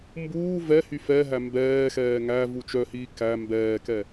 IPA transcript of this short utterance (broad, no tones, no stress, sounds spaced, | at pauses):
m b uː v ɛ h y f ɛ ɦ æ m b ɛː x ɛː ŋ æ v u t͡ʃ œ h iː k æ m b ɛː k ɛ